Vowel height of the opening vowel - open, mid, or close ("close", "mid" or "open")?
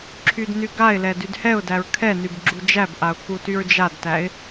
close